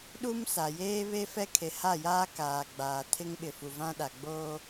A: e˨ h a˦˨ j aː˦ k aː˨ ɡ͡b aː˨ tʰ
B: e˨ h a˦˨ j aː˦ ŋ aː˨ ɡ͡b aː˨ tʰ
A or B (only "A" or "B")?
A